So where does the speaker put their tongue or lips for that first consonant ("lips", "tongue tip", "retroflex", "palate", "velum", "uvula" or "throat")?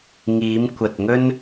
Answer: velum